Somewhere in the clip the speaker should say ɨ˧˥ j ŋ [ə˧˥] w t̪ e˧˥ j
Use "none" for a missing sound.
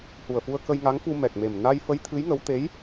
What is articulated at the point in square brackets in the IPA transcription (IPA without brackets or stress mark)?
ə˧˥